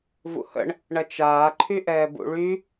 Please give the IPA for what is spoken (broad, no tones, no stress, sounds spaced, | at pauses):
v ṵ h ə̰ ɳ | ɳ ɐ t͡ʃ aː ǃʰ y ʔ ɛː b ṵ ɭ y